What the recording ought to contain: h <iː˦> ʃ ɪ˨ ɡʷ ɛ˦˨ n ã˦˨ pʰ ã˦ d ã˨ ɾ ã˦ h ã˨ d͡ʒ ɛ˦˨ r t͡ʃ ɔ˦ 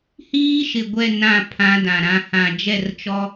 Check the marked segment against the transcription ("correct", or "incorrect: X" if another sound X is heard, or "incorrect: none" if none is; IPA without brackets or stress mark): correct